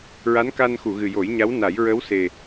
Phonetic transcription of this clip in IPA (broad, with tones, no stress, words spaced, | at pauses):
ɹa˧˥nka˧nxu˨˩˨ɣɨ˨˩ jo˨˩˦jɲa˧˥wna˨˩˦j ɹə˧˥wse˨˩